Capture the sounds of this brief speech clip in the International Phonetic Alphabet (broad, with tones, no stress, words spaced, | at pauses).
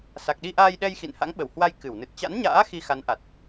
sa˨˩k̚ɗi˧ʔaː˧jɗɛ˧j xḭ˧˨nha̰˧˥ŋɓə˧˩whwa˧j kɨ˧˩w nɨ˨˩t̚t͡ɕa̰˧˥nɲa̰ː˧˥ xi˧xa˨˦nʔa˨˩t̚